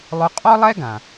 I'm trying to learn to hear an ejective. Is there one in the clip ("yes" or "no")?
yes